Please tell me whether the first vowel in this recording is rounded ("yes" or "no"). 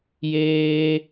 no